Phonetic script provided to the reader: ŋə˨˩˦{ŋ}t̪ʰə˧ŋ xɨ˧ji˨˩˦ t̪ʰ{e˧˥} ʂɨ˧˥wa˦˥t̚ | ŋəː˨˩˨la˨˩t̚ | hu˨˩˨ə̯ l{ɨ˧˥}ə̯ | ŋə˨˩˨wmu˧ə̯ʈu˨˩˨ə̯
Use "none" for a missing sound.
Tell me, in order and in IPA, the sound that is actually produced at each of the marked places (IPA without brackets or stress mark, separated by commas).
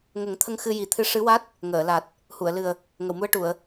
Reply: ŋ, ɨ˧˥, ɨ˨˩